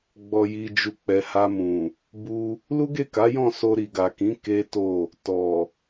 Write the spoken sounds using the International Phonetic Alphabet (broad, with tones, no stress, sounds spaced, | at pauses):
ɡ͡b ɔ˨ j i˨ d͡ʒ u˨ k͡p ɛ˨ h a˧ m ũ˨ | b u˧ | l u˦ ɡ e˦˨ k a˨˦ j ɔ̃˦˨ s o˧ ɾ i˨ ɡ a˨ k ĩ˨˦ k e˦ t o˦˨ | t ɔ˨